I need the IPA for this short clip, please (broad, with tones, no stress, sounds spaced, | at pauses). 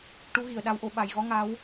ʈ u˧˥ ɣ i˨˩ ə̯ ɗ a˧˥ w ʔ o˨˩˦ ɓ a˨˩ j ɣ ɔ˧˥ ŋ a˧˥ w